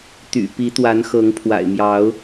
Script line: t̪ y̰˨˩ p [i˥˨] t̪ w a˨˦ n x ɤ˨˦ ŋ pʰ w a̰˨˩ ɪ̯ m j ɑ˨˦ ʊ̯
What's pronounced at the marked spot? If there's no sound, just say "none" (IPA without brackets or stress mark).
i˨˦